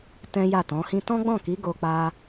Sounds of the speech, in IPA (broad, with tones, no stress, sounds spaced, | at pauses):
t ɛ̃˦ j a˦˨ t ɔ̃˨˦ h ĩ˧ t ɔ̃˦ ɡ͡b ɔ̃˦˨ k i˨˦ ɡ o˧ k͡p a˧